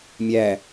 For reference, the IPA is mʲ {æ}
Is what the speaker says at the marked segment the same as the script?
yes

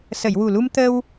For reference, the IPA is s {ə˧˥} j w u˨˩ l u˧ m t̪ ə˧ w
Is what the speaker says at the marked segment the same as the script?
no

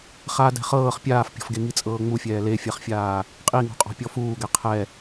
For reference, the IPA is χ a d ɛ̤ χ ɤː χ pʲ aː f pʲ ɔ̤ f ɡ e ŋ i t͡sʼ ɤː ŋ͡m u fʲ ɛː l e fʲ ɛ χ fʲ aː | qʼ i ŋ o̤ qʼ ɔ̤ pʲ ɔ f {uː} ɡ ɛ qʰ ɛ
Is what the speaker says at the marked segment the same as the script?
yes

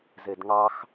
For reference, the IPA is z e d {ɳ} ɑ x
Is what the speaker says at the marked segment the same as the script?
no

